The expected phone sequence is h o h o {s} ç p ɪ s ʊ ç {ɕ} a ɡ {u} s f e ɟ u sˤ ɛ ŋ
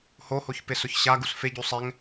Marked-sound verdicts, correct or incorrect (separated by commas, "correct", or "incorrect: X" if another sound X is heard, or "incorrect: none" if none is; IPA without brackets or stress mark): incorrect: none, correct, correct